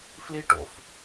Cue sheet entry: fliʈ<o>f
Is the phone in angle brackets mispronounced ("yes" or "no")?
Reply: yes